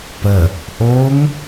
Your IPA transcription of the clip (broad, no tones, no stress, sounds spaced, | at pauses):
p ə | ʔ o ŋ